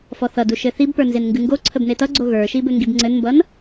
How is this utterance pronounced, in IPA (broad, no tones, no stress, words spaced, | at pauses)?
fɔθʌdu ʃɘθibpə˞ nzenŋɡɨŋɡoǀʰəb netʌɡ͡ǀo ɣə˞ʃi bɘŋɡibŋ͡ǀɘnmbʌn